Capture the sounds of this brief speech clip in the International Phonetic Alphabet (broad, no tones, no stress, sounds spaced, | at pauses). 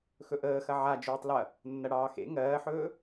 x ɵ ʔ əː x ɐ ʕ a d͡ʒ ɵː tˤ l ɐ | nː ɐ ɽ ɑː x ḛ ŋ ɜː ħ ɵː